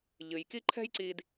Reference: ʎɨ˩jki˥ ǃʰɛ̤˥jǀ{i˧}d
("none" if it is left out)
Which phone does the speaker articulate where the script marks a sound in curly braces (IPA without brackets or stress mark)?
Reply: i˧